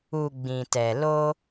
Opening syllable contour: low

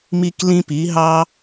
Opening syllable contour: high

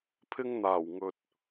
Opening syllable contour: high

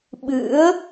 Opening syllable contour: rising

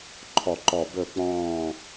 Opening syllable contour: falling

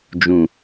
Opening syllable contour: low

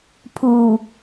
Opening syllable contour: low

